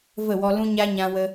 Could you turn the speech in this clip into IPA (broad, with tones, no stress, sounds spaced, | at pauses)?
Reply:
v ə˦˨ w ɔ˧ l ũ˦ ɲ a˦ ɲ ã˧ w ə˧